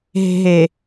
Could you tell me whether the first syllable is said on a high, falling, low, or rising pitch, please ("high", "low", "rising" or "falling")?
low